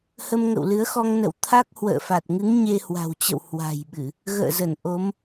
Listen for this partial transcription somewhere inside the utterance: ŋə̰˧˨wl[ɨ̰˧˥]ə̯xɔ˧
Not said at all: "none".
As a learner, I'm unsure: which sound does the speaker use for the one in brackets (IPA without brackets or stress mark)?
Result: ɨ˨˦